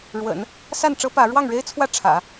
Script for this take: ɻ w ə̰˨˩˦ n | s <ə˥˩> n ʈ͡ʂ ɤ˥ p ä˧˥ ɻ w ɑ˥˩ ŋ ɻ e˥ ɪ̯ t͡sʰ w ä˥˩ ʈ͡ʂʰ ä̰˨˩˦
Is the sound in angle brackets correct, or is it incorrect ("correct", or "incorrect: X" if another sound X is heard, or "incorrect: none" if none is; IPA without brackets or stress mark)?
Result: incorrect: a˥˩